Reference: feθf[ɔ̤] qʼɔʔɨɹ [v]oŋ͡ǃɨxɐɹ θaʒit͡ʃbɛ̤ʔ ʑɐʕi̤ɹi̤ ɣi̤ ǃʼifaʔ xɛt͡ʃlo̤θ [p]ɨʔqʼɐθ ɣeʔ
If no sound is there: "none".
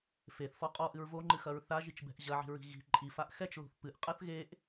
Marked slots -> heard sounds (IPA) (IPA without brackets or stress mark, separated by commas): ɔ, v, p